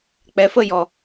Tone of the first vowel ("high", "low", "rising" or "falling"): rising